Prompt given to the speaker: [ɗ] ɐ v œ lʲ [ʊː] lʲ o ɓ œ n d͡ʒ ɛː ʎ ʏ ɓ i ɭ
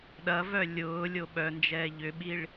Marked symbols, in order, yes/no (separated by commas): yes, yes